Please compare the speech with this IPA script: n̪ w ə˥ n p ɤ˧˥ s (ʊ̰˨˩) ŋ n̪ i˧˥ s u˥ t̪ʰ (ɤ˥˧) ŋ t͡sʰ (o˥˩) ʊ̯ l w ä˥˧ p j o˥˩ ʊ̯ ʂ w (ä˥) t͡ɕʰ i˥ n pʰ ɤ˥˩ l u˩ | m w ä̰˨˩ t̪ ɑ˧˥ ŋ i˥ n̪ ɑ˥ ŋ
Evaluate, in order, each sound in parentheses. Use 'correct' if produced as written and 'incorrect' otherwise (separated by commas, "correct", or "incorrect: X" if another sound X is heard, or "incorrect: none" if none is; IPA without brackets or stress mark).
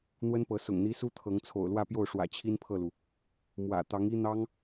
correct, incorrect: ɤ˧˥, incorrect: o̰˨˩, incorrect: ä̰˨˩